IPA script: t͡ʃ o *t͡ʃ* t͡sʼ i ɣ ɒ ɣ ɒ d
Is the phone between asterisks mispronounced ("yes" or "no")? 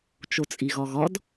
yes